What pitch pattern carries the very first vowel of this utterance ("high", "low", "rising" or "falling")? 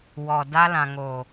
low